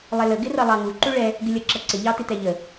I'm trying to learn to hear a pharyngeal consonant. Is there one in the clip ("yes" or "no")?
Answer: no